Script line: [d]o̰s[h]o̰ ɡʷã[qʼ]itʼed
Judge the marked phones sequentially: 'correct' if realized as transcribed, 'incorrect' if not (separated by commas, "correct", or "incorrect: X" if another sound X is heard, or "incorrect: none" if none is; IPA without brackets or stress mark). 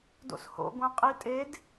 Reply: correct, correct, correct